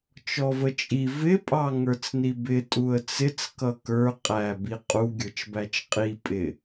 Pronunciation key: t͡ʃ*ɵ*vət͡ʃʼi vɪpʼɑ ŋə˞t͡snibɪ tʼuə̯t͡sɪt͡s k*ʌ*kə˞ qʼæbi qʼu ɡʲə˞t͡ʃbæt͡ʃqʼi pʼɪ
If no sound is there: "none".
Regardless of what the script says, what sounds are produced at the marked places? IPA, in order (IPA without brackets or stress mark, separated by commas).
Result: ɔ, ʌ